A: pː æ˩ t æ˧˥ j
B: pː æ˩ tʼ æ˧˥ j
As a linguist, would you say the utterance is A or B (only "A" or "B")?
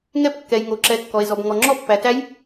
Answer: A